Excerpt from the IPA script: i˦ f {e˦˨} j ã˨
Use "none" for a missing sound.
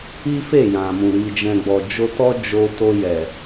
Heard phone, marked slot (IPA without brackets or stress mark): e˦˨